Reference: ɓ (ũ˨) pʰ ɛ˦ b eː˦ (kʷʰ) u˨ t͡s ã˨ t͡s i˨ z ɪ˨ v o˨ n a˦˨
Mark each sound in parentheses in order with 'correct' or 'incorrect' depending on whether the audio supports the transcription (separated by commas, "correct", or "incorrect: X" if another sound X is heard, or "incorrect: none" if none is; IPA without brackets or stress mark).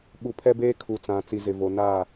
incorrect: u˨, incorrect: kʰ